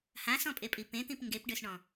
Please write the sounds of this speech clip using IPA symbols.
h ã s ɔ̃ pʼ e pʼ i p ẽ t̪ ĩ p ŋ ɡ e p ɖ ø s ɳ ɔ̃

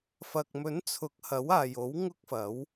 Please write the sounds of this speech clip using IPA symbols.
f ɐ˨ k̚ m ɵ˨˥ n t͡sʰ ʊ˨˥ k̚ h ɐ˨˥ w aː˨ j o˨˥ w ŋ ʊ˥ k̚ f ɐ˨˥ w

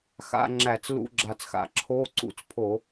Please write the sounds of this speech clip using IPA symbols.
x a̰˧˥˧ ŋ͡ǁ æ˧˩˧ t͡s l ṵ˧˥˧ ɡ͡ǁ a˨˩ t͡s x a̰˨˩ ǁʰ o˧˥˧ ǀ ṵ˧˥˧ t͡s pʰ o˧˩˧

